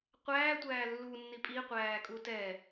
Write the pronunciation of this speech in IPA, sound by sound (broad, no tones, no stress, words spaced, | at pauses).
qʷæː tʷæːlːu nːipʼi qʷæːkʼutɛ